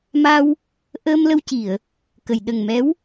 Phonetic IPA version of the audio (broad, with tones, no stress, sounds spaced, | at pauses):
m a˧ w | ʔ əː˧ m l ə˧ w c i˨˩˨ ə̯ | k ə˨˩˨ j ɗ ə˨˩ ŋ m ɛ˧˥ w